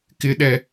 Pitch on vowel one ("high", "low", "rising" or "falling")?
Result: high